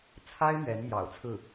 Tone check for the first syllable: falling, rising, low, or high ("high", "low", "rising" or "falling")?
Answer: high